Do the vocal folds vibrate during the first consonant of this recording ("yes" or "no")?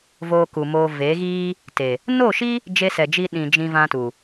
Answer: yes